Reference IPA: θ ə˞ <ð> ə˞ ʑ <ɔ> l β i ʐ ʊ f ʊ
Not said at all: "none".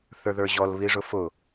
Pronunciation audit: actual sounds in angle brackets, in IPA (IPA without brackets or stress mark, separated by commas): ð, ɔ